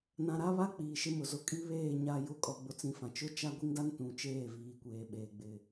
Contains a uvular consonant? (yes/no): no